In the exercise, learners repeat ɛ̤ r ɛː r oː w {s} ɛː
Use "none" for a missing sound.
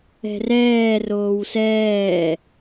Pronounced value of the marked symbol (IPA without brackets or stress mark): s